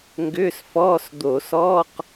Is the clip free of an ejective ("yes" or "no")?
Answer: yes